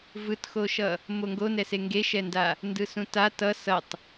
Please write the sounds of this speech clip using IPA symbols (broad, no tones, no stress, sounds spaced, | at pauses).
v ɯ t x o ʃ ʌ | m o ŋ ɡ o n ɛ s e ŋ ɡ e ʃ ɛ n d a | n d ɯ s ũ t a t ʌ s ʌ tˤ